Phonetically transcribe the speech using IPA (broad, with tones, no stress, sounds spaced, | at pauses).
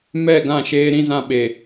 m ɛ˦˨ ɡ ã˦˨ ʃ eː˦ ɾ ĩ˦ z ã˦ ɓ e˨